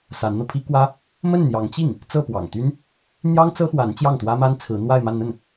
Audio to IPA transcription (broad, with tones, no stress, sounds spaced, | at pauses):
s a˧˥ n n̪ ɤ˧ pʰ i˥ k w ä˥ | m ə˥˩ n n̪ j ɑ˧˥ ŋ t͡ɕ i˥˩ ŋ | t͡s ɤ˥˩ p w ɑ̰˨˩ ŋ t̪ y˥ n | n̪ j ɑ˥ ŋ t͡s ɤ˥ x w a˧˥ n t͡ɕ j ɑ˥˩ ŋ t̪ w ä˥ m a˥ n t͡sʰ ɹ̩˧˥ n̪ w a˥˧ ɪ̯ m a˥˧ n n̪ ə˥˩ n